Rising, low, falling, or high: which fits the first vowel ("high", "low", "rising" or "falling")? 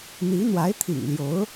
rising